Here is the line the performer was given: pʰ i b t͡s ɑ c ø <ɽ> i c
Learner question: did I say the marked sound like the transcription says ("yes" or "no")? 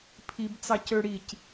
yes